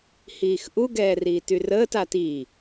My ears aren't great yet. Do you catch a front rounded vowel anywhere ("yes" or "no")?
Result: yes